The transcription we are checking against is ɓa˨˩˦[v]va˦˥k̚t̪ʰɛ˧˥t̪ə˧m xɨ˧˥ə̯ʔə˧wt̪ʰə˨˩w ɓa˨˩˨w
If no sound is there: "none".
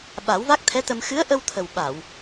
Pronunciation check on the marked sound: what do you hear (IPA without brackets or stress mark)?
w